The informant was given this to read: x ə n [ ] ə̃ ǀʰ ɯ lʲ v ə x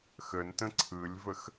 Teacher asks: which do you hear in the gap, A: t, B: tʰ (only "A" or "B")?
A